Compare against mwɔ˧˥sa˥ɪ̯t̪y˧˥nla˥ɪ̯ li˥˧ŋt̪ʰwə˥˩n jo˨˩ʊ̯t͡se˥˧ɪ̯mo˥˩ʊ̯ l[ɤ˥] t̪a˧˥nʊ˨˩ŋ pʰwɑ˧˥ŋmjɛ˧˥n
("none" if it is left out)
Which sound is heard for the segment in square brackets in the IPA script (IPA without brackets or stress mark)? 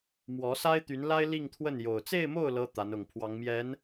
ɤ˥